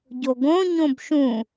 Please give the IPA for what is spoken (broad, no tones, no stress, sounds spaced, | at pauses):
ɟ o ɡ õ ɲ õ b ʃ ũ